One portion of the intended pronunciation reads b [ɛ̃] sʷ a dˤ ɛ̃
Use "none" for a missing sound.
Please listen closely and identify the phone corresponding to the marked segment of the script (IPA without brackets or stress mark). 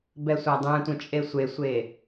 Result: ɛ